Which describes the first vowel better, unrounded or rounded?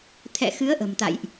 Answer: unrounded